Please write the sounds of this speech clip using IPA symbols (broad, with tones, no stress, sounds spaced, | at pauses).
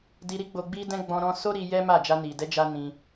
d i˧ ɾ i˦ ɡ͡b o˧ ɡ͡b i˦ d ɛ̃˦ ɡ͡b ɔ̃˧ ɾ ɔ̃˧ s o˦ ɾ i˧ j ɛ˦ m a˦˨ d͡ʒ a˧ n i˨ d ɛ˨˦ d͡ʒ a˧ n ĩ˧